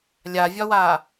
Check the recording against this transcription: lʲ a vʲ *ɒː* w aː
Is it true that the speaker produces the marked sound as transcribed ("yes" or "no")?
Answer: no